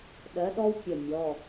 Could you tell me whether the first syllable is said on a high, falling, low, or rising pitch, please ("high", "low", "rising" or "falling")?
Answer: rising